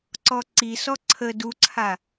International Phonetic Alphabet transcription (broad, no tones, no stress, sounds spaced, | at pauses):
ǀ ɔ ǀ i s ɔ ǀʰ ə d u ǀʰ a